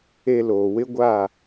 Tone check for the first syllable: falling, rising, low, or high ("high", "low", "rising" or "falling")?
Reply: low